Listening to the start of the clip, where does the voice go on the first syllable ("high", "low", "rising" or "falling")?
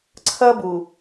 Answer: high